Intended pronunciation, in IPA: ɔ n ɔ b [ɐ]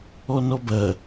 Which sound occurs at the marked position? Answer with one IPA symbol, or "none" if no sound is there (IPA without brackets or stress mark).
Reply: ɐ